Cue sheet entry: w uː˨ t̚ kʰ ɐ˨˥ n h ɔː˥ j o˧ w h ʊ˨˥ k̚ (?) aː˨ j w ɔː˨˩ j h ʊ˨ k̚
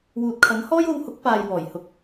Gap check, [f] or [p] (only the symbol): p